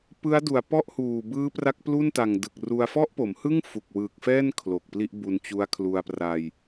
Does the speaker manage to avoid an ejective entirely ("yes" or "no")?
yes